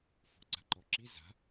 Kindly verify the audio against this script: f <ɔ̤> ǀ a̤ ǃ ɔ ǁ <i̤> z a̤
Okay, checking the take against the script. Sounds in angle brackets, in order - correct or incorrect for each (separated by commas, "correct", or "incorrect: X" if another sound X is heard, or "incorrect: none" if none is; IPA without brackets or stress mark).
correct, incorrect: i